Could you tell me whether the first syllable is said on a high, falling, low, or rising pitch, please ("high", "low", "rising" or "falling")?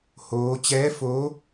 rising